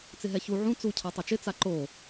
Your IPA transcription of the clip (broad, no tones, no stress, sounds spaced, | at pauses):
t͡s ɪ ɦ ɛ ç u ʕ ũ t͡s u cʰ a tˤ ɛ t͡ʃ ɪ t͡s a ǃ o